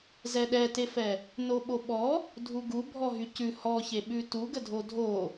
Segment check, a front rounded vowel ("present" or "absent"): present